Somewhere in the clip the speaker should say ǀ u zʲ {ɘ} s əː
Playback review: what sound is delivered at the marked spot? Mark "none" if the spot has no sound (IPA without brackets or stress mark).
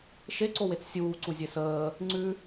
e